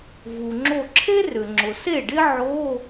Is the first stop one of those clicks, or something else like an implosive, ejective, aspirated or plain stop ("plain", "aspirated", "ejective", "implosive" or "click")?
click